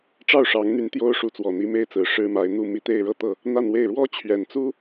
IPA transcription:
ʈ͡ʂɑ˥˩ʊ̯ʂɑ˧˥ŋn̪y˧˥n t̪jo˥ʊ̯ʂu˧˥t͡swɔ˨˩ n̪i˧˥me˥ɪ̯t͡sɹ̩˨˩ ʂɻ̩˥ma˧˥ɪ̯ n̪u˥˧mi˥˧ t̪e˥˧ɪ̯ ɻɤ˥˧t̪ɤ˥˩ | n̪a˥˧nwe˥˩ɪ̯ ɻwɔ˥t͡ɕʰɥɛ˨˩nt͡su˥

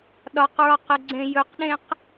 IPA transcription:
ɗɒqɹɒqəɡ͡ǀẽ jɵqɗẽq

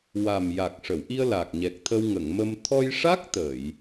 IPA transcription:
wa˨˩mja˨˩k̚ ʂə˨˩˨wʔi˧ə̯ la˨˩k̚ɲɛ˨˩k̚t̪ʰə˧w ŋə˨˩˨ŋmə˧m t̪ʰɔ˧jʂa˦˥k̚ t̪ə˨˩˨j

